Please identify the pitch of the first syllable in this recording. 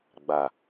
low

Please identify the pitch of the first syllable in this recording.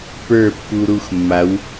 falling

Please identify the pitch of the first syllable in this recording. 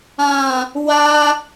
low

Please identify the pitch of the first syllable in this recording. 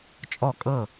falling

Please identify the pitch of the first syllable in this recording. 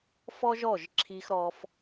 high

